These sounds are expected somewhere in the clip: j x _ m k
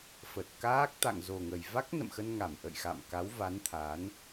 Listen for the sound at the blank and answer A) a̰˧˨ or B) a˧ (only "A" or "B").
A